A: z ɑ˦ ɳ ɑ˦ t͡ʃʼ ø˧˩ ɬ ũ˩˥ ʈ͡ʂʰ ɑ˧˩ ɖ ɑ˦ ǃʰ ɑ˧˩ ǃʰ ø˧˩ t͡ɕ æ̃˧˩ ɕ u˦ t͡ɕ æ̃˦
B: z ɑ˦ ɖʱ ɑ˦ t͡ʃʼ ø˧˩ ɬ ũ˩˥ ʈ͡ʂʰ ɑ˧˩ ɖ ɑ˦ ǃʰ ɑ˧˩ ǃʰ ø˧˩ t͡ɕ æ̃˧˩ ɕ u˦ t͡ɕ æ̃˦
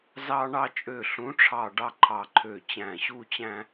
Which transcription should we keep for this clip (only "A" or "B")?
A